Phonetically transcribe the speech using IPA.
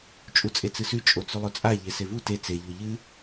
t͡ʃʼ u t͡sʼ e t͡s ɨ s ʉ t͡ʃʼ o t͡s ʉ lˠ ɵ t͡sʼ a ʎ e s e v u t e t͡s e ʎ o ʎ ɨ

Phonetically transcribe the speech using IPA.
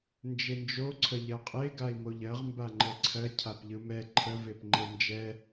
n d͡ʒ e n d͡ʒ o ǀʰ ə ʎ ɜ qʼ e ɡ a i̯ m o ʎ ɜ ʁ m b a ŋ͡ǃ ɛ ǀʰ ɜ cʰ a p ʎ ɯ m ɛ ǃʰ ə v e p ŋ͡ǃ e n d͡ʒ ɛ

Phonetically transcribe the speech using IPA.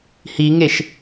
h i ŋ e ʃ

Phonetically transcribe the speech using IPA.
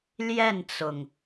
l j ɛ˥˨ n t͡s ʊ˩ ŋ

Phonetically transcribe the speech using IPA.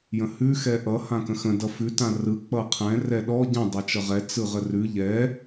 j ə̃ h ʉ x ɛ ʔ ʌ h ã k ə̃ x ə̃ d ʌ f ʉ t ã r ɯ k͡p ʌ qʰ ɛ̃ r ɛ ɗ ɔ ɟ ə̃ dˤ ɛ t͡ʃ ʌ ʁ ɛ t͡s ɯ ʁ ə r ʉ ʎ ɛ

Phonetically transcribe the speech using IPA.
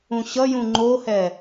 ũ ɕ ʌ j ũ ŋ͡ǃ o h ɛ

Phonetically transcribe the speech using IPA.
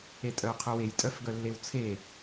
e tʼ œ ʊ̯ qʰ œ w e j tʼ œ f ɡ œ lː e w t͡sʰ e

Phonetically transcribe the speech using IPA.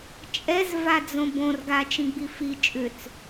t͡ʃʼ ɛ z v a d͡z õ b õ r ɡ a t͡ʃ ĩ ɡ͡b i f i t͡ʃʼ ʏ t͡s

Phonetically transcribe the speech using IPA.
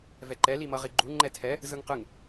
v ɛ ǃ ɛ l i m ʌ ʁ i ɡ͡ǃ u ŋ͡ǃ ɛ tʰ ɛ | z ɯ ŋ q ɯ ŋ

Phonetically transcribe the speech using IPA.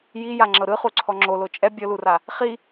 j i j a ŋ͡ǁ ɤ ɾ ɯ χ u ǀʰ ɔ ŋ͡ǁ o l o t͡ʃʼ ɛ bʲ ɤ l u r a | χ i

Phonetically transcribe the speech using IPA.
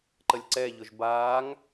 ǃ ə lʲ ǀ ɛ ʎ ʊ ʒ b aː ŋ

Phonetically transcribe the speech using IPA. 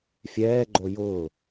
fʲ ɛː ɡ͡ǃ o j ʊː

